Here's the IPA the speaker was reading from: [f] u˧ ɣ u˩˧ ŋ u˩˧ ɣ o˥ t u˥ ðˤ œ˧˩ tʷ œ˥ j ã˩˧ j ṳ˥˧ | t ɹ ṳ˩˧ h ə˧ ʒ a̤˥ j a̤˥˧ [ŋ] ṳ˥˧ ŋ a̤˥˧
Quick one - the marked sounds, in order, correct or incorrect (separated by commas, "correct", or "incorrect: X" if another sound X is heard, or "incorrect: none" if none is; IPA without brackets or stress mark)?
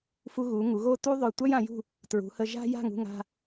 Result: correct, correct